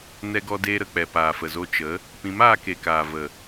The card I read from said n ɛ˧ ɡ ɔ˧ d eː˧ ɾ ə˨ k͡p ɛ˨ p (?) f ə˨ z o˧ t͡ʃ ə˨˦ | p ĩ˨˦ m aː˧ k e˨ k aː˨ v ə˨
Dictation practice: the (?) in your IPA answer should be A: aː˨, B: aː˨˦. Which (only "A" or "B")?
A